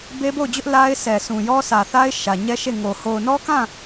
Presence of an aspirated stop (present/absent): absent